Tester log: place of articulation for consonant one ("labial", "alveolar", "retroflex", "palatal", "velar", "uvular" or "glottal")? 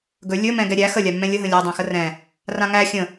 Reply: velar